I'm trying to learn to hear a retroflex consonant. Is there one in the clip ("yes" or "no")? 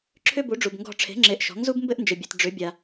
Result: yes